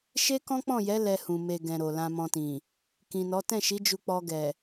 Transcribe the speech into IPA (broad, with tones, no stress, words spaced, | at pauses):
ʃe˦kɔ̃˦k͡pɔ̃˦˨jɛ˨˦ lɛ˧hũ˨ me˨ ɡɛ̃˨ɾo˨ lã˧mɔ̃˧tĩ˨ | kĩ˨nɔ˨˦ tɛ̃˦˨ʃi˨˦ d͡ʒu˧k͡pɔ˧ɡɛ˨